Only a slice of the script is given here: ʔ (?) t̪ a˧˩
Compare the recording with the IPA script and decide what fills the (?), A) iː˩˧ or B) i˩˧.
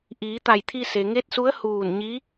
A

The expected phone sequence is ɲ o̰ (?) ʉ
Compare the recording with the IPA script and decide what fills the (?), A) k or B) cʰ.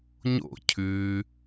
B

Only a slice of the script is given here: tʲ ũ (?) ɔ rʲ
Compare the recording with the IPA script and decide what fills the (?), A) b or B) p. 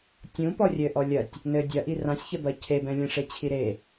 B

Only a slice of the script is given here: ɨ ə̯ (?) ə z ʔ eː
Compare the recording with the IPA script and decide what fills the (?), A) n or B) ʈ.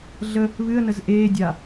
A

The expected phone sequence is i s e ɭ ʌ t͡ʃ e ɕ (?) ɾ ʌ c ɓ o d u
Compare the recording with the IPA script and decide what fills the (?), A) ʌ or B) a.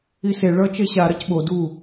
B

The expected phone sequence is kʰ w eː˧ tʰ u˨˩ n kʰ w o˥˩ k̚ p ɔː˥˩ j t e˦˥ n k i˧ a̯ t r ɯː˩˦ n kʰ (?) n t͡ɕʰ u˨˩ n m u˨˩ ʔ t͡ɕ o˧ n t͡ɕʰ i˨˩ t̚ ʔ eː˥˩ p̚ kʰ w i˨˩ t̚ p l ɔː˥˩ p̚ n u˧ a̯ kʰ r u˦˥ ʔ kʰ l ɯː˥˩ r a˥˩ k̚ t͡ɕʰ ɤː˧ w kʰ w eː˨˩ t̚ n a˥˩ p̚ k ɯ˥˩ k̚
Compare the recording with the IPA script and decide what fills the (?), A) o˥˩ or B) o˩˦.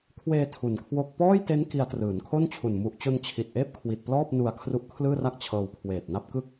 A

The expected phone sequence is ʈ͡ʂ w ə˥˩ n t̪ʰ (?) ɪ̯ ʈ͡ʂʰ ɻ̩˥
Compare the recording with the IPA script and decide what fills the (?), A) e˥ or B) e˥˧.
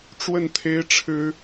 A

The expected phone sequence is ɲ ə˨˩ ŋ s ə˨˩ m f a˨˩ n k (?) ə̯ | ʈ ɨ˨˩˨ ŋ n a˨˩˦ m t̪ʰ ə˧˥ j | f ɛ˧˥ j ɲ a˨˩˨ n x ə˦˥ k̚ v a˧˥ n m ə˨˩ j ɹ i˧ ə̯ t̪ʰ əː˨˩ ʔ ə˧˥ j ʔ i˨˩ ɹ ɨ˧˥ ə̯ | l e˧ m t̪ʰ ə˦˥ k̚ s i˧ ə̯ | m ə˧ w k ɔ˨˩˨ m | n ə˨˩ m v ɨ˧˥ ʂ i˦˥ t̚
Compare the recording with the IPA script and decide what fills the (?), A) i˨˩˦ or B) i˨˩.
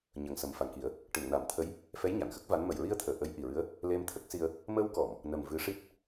A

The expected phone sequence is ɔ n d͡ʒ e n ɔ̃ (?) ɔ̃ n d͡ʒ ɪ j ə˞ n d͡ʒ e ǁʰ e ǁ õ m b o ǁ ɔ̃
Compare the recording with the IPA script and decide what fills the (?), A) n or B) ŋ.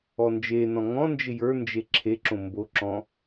B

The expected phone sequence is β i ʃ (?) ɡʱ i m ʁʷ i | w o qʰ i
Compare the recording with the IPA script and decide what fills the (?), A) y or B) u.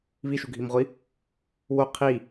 B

